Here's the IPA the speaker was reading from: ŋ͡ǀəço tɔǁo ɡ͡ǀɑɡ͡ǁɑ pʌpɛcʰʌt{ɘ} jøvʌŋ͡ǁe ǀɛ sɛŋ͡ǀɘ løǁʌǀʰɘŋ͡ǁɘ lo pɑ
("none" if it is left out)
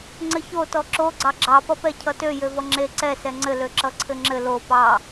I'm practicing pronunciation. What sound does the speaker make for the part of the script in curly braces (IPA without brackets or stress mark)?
ø